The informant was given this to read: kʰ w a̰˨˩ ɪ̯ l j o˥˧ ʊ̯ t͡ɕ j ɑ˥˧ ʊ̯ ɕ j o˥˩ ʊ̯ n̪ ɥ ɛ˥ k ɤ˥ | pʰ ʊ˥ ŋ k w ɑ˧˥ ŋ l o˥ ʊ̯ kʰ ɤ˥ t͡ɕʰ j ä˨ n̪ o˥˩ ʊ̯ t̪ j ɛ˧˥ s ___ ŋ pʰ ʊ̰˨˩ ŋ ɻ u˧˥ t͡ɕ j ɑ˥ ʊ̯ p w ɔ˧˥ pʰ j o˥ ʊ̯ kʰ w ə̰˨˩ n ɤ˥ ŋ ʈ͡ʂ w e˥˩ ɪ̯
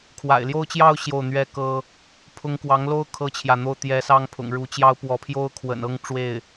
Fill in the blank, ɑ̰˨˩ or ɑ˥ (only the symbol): ɑ˥